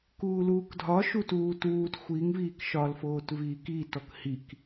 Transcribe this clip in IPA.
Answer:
k uː l uː k dʱ ɒ ʃ u t uː t uː t xʷ i ŋ v iː k ʃ ɒ l f oː t v iː k i t ɔ k h i k

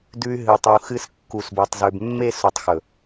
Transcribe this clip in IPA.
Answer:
d ʉ˨ y̯ ɦ ɨ˨ u̯ tˤ ʉ˨ u̯ x ɨ˨ s kː u˨ s b o˨ tˤ z ʉ˨ b mː e˦ s o˨ tˤ x ɵ˨

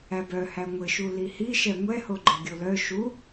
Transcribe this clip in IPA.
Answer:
æ b œ h æ ŋʷ ɘ ʃ u l i h i ʃ ɛ ŋʷ ɛ h o ɡ͡ǃ ɘ ɡʲ o l œ ʃ u

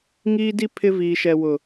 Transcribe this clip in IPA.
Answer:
ŋ iː˦ d i˦ pʰ ɪ˦ v iː˨ ʃ ɛ˨ w ʊ˨

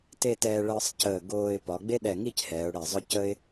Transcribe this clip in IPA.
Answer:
t e˥˧ t ɛː˧ ɭ əː˧ sˤ c əː˧˩ ɡ oː˧ ɪ̯ p ɒ˩˧ ɡ͡b e˥ ɗ ɛ˧˩ ŋ i˥˧ c h ɛː˩˧ ʊ̯ ɽ ɛ˧˩ zˤ œ˥ c ə˥ ɪ̯

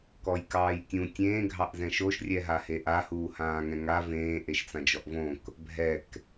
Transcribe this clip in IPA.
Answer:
k ɔ j k ɑː j tʲ ũ tʲ ẽː ɡʱ ɑ ʔ z ɛ̃ ʃ o ʃ rʲ ɛ ɦ a h e ʔ a h uː h ãː ŋ ɛ̃ ŋ a v ẽː ʔ e ʃ t͡s ã d͡ʒ ɔ ʔ v õ k | bʱ ɛ k

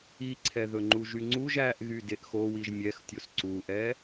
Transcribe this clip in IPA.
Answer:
i ǀʰ ɛ ð ɵ ŋ͡ǃ u ʒ y ŋ͡ǀ u ʒ æ ʔ ɣ y d e ʔ x o w i ʒ mʲ ɛ x tʲ o s ǀ u ʔ ɛ

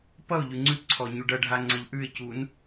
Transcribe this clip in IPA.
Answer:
p ʌ ʊ̯ ʎ ʉ ŋ͡ǀ ʉ p ǀʰ ɔ ɲ u ɖ ʌ ɖʱ a ŋ͡ǀ ʌ ʎ ʔ ʉ ɪ̯ c u n

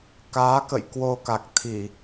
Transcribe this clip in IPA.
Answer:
k aː˨˦ k ə̰˧˨ j k w o˧ k a˨˩ k̚ t̪ʰ i˧˩˨

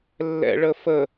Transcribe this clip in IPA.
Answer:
lː ɛ̰ ɭ ə f ə

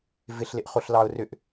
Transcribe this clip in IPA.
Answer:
v ɪ ɬ l ɪ ʔ χ o ɬ l ɑ ʊ̯ r ʏ ʔ

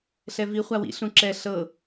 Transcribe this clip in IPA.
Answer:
ɬ ɛ v i χʷ a w ḭ ɬ ũ ǁ ɛ ɬ ɤ

